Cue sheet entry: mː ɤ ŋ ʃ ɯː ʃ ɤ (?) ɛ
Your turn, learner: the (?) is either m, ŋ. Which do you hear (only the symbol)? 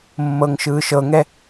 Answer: ŋ